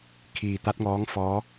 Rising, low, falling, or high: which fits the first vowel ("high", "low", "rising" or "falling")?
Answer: low